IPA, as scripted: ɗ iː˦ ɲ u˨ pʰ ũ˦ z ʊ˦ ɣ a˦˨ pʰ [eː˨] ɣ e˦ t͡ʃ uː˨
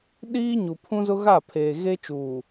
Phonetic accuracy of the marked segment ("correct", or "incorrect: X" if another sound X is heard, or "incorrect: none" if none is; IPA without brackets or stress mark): correct